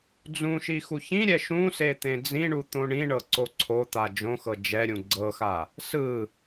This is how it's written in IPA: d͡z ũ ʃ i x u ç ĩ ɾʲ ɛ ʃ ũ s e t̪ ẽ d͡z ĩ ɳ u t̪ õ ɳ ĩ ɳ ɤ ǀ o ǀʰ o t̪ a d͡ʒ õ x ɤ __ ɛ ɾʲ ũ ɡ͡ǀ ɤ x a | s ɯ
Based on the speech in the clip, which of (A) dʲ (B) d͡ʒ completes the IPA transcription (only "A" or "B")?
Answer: B